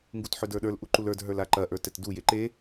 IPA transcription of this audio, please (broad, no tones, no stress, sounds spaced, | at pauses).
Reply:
ŋ ɡ u t ħ ɵ d ə˞ ɗ ə˞ l ʔ u ǃ u l ə˞ d ɦ ə˞ l a ǃ ɐ ʔ ə˞ t ɛ t d u j e ǃ e